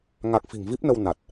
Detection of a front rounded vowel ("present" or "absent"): absent